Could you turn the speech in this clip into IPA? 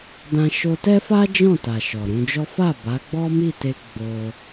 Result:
dã˧ʃo˧tɛ˦fa˦ d͡ʒɔ̃˦˨ta˨ ʃɔ˨ɾũ˧d͡ʒɔ˦ fa˦˨ ba˨˦ɡ͡bɔ˦mi˦˨te˧ ɡ͡bo˧

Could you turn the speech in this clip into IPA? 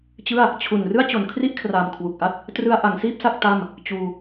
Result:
t͡ɕɯ˥˩a̯ | t͡ɕʰu˨˩n rɯ˥˩a̯t͡ɕo˩˦n kʰri˥˩ʔkʰraː˨˩m kʰwu˨˩k̚ʔa˥˩t̚ | trɯ˧a̯ʔa˩˦ŋsiː˥˩p̚sa˥˩k̚ ta˥˩m | t͡ɕuː˧

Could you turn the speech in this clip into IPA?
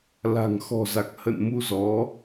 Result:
la̤˨˩ŋ xɔ̤˨˩za˨˩k̚ hə̰˧˨n mu˧zɔ˨˦

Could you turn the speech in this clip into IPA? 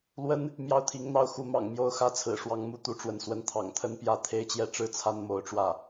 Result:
lwə˥n | mjɑ˥˩ʊ̯t̪ʰi˧˥ŋn̪ɑ˥˩ʊ̯ xu˧˥mɑ̰˨˩ŋ mjo˥˩ʊ̯ xä˥t͡sʰɹ̩˨˩ʂwɑ˧˥ŋ mu˥t̪u˧˥ʈ͡ʂwə˥˩nswə˥n t̪ʰɑ̰˨˩ŋt̪ʰə˥n pjä˥t̪ʰe˥ɪ̯t͡ɕjɛ˥˧ ʈ͡ʂɻ̩˥˩t͡sʰa˥nmo˧˥ʊ̯ʈ͡ʂwä˥˩

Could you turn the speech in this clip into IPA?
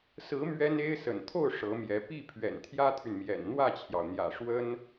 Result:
sɹ̩˧˥ mɥɛ˥ne˥ɪ̯ sə̰˨˩nt̪ʰo˥˩ʊ̯ ʂɤ˧˥mjɛ˧˥ pi˥˩ pʰɥɛ̰˨˩nt̪ʰjä˥t̪ʰy˨nmjɛ̰˨˩n n̪wä˥˩t͡ɕʰjɑ˩ʊ̯n̪jä̰˨˩ʂwə˥n

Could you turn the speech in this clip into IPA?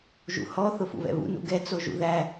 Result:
ʒṵhɔ θʊfṵβɛ̰βṵ nṵɡɛ t͡soʒṵðæ

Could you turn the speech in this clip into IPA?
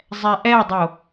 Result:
zˤɛʔɛdˤo

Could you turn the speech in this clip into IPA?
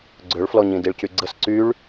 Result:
ɡ͡ǀøɭflɔɲĩ diɭcyɡ͡ǀəs ǀyɭ

